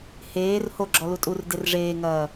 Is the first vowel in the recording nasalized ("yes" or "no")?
no